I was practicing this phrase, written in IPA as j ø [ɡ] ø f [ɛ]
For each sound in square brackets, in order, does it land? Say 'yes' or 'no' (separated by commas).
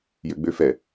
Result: no, yes